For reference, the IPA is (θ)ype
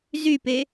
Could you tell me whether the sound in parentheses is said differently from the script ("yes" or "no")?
yes